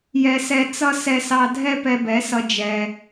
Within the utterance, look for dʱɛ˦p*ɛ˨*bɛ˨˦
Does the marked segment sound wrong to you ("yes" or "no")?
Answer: yes